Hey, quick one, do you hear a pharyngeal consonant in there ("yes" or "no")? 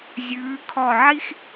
yes